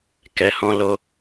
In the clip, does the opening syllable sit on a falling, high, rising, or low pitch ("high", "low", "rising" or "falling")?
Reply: low